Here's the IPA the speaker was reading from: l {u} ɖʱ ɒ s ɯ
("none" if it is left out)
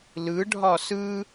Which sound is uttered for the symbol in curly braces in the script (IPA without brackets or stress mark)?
ɯ